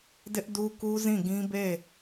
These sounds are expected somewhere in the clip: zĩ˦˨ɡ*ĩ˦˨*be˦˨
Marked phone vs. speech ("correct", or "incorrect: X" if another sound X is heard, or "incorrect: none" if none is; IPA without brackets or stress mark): incorrect: ĩ˦